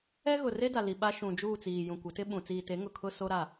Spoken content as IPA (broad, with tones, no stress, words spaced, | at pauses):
ɛ˦ɣʊ˨re˦da˨ li˨ɓa˦ʃũ˨ d͡ʒuː˦˨t͡siː˨jũ˨ kʷɪ˨˦tɪ˦ɓũ˨ t͡siː˨te˨˦ ŋʊ˨kʰʊ˦ so˦ɾa˦˨